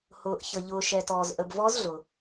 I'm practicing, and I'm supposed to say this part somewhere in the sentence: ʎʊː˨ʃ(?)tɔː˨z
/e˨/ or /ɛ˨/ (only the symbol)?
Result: ɛ˨